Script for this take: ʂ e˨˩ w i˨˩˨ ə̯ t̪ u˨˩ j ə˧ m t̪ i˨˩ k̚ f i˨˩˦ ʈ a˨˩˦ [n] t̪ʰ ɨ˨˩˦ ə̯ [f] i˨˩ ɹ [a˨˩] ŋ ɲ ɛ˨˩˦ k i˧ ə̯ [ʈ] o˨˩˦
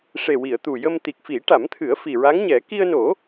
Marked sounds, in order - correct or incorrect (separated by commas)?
incorrect, correct, incorrect, incorrect